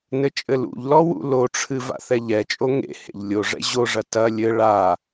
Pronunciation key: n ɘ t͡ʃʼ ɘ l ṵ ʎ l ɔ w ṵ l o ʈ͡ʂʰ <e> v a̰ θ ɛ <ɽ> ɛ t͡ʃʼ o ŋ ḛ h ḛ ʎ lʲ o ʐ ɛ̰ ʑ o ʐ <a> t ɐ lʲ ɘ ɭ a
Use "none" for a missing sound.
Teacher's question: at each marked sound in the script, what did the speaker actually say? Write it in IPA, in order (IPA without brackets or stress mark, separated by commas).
ɨ, ʎ, ɐ